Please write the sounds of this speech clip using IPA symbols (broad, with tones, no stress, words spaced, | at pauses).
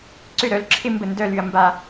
ǀʏ˥˩ ɾœ˧lǁʰɪ˥˧ mbə˥˩ndœ˥˧ly˧ɐ̯ mba˧